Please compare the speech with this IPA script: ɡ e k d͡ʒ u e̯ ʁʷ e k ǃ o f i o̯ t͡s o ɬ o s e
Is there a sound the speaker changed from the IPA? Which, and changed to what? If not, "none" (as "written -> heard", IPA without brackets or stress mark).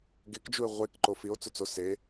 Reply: ɬ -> t͡s